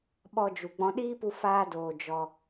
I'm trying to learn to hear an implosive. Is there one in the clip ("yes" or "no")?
yes